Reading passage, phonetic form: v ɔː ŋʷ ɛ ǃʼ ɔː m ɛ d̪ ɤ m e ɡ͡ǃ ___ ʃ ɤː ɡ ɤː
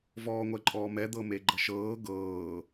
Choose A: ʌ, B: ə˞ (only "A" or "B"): A